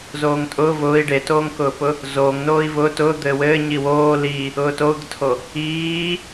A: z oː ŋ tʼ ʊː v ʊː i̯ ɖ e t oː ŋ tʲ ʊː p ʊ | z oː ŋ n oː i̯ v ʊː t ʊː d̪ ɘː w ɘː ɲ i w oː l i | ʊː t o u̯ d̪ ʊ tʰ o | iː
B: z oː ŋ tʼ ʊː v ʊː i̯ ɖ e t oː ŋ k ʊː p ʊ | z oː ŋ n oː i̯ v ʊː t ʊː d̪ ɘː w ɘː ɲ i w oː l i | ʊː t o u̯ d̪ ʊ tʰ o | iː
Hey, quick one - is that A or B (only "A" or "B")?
B